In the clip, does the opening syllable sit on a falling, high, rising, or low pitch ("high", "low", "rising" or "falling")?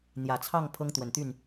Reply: low